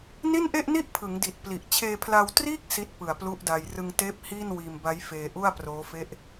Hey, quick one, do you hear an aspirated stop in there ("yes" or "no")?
yes